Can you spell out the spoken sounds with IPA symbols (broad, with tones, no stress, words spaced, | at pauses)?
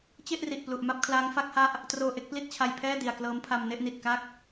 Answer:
t͡ɕe˥˩ʔri˨˩ʔ plu˨˩ʔ ma˥˩p̚kʰlaː˦˥ŋfa˦˥k̚ha˥˩ʔ | troː˧ʔe˥˩k̚pli˥˩t̚t͡ɕʰa˧j pʰɛː˥˩ di˨˩a̯klɤː˦˥mpʰa˧m ne˥˩ʔni˨˩t̚ka˥˩k̚